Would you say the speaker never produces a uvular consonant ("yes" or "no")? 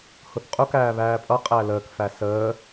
no